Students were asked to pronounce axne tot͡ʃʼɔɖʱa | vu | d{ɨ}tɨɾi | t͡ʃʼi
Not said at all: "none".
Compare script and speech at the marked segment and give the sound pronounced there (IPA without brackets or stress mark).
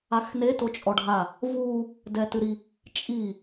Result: ɛ